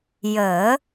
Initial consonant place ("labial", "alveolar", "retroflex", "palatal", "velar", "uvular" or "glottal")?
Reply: palatal